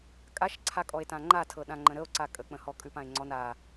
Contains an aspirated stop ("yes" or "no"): yes